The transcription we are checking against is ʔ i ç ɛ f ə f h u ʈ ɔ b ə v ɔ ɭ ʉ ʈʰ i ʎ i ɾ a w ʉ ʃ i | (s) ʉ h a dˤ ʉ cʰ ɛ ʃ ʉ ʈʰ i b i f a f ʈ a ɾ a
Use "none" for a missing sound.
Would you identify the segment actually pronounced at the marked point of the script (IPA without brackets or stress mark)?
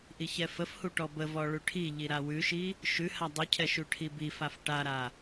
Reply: ʃ